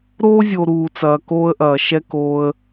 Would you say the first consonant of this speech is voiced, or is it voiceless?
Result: voiced